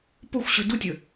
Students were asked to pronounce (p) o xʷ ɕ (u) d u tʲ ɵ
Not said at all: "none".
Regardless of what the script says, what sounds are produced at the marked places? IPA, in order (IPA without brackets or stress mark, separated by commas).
p, ʉ